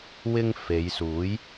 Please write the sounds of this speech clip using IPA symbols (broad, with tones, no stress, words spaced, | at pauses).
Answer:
wɪ˥ŋ fe˨˧jsuː˨˥j